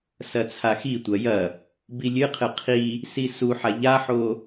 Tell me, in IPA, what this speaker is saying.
s ɐ t͡sʰ a x i tʷ ɐ j ɐ | b i lʲ ɨ qʰ ɨ qʰ i | s i s u ħ a ʎ a ħ o

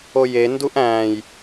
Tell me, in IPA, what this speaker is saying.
o j e n d u ʔ æ̃ː j

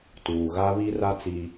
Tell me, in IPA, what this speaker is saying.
t uː˨ ɣ a˦ β i˦ r a˦ t͡s i˦

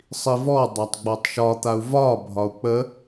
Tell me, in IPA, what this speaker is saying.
sˤ i v ɔ dˤ a tˤ ɡ͡b ɔ tˤ ʃ ɒ t̪ a u̯ v ɒ bʱ ɒ u̯ k͡p ə

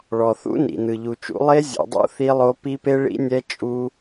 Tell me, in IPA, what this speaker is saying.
ɭ ɔ˩ θ ṵ˦˥ n ḭ˩ n ɯ˩ ʎ u˩ t͡ʃ ṵ˦˥ lˠ e˦˥ zʲ ṵ˩ dˤ ṵ˦˥ θ i˦˥ lˠ o˦˥ p i˦˥ p e˦˥ ɭ ḭ˦˥ nʲ ɛ˦˥ t͡ʃʼ u˦˥

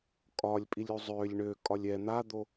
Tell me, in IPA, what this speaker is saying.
kʼ ɒ lʲ pʼ i lʲ u zˤ ø lʲ ɳ ø kʼ ɒ lʲ ɛ n̪ a d̪ o

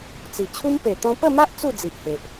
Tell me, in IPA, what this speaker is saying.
t͡s i˨˩ t͡ɕʰ u˦ m p e˨˩ t̪ ɔ̃˧ p ə˥˧ m a˦ ʔ t͡s u˥˧ d͡z i˨ ʔ h e˨ ʔ

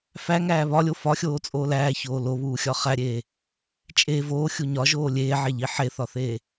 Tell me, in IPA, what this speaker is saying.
f æ ŋ æː β ɒ lʲ o f ɒ xʲ oː t͡sʼ oː l æː ç oː l o β uː xʲ ɒ χ æ ɾʲ eː | t͡ʃʼ e v oː xʲ u ɲ ɒ ʒ oː lʲ eː ʕ e ʎ i ħ e θ ɒ θ eː

